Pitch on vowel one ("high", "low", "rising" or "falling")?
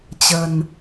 low